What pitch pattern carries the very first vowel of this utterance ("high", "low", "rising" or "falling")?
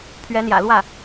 rising